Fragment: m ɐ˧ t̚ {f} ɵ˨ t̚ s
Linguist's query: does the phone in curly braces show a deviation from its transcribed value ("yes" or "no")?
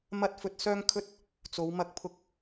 no